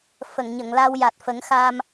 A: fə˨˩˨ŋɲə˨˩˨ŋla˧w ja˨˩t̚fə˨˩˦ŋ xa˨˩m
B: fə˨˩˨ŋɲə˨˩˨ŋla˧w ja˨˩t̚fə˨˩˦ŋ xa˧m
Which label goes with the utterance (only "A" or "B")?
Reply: B